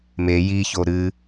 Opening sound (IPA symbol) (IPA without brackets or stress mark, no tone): m